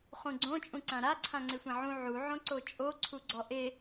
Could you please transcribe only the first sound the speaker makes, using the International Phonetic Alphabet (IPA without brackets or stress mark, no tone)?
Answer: χ